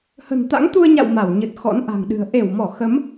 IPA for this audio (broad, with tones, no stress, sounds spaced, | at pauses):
h ə̤˨˩ n t̪ a̰˧˥ ŋ t̪ u˧ ə̯ ɲ a̰˧˨ w m a˧˩ w ɲ ɨ˨˩ t̚ x ɔ̰˧˥ n ʔ a̤˨˩ ŋ ɗ ɨ̤˨˩ ə̯ ʔ e˧˩ w m ɔ˧˩ x ə˨˦ m